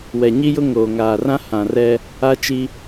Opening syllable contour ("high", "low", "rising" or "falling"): low